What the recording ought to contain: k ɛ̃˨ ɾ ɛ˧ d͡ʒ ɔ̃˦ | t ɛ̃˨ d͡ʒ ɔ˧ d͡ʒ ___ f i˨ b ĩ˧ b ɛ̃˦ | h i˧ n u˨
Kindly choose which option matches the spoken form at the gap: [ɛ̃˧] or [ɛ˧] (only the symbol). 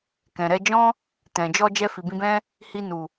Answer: ɛ˧